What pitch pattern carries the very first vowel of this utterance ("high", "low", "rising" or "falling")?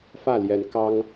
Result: falling